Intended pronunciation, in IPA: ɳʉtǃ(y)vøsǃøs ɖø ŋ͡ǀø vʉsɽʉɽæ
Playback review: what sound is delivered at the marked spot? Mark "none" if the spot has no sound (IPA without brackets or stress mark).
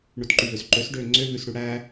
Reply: y